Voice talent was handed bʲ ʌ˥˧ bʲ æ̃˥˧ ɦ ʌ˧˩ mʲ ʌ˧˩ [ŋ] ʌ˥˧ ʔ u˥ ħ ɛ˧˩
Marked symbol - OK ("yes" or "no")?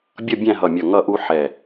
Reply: yes